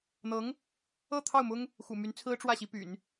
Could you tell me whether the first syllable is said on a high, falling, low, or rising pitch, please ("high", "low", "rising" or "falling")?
rising